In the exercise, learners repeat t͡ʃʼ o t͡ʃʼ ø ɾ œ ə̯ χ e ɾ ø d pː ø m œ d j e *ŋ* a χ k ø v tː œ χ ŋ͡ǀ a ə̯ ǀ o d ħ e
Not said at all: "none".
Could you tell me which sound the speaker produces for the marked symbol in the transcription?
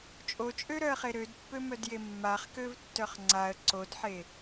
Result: mː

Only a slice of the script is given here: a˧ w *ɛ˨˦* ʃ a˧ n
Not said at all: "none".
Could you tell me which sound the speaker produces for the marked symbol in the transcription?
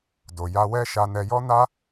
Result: ɛ˦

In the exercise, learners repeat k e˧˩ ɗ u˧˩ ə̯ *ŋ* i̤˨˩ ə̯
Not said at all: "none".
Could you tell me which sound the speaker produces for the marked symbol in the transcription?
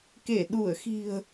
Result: x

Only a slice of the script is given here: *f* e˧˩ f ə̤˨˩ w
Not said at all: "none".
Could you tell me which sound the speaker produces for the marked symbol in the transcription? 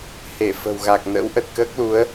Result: h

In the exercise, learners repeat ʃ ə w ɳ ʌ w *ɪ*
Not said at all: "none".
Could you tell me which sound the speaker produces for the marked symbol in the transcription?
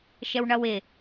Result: ɪ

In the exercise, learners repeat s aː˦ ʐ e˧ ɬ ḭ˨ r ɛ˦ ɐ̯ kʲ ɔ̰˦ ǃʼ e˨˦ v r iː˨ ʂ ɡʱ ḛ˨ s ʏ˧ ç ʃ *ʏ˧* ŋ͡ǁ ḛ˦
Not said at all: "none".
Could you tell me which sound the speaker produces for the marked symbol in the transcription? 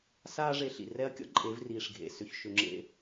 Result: ʏ˧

